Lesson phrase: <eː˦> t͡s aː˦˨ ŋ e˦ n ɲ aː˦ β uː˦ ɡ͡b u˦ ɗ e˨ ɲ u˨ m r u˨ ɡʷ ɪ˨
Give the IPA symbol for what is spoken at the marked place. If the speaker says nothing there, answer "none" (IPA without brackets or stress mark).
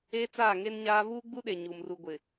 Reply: eː˦